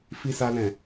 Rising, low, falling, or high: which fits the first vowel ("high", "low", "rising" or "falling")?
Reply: high